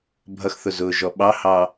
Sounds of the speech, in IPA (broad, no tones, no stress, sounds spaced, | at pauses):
bʱ ʌ x θ ʊ z ʊː ʒ ɔ ɓ ɑ h ɑ